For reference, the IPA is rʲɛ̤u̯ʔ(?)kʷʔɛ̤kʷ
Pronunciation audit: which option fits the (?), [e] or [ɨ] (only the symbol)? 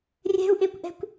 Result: e